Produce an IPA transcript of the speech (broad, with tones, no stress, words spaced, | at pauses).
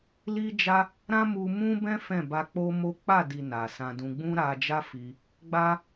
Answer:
li˦d͡ʒa˦ | ɾã˦mu˧mũ˦bɛ̃˦ fɛ̃˦˨ba˧k͡po˦mo˦ k͡pa˦˨di˨ na˨sã˧dũ˧ ɡ͡bũ˦ɾa˧d͡ʒa˦ fi˧ | ɡ͡ba˧